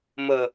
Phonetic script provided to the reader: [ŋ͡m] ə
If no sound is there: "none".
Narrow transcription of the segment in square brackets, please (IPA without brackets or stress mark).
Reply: m